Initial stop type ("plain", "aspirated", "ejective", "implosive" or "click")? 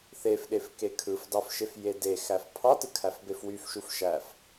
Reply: implosive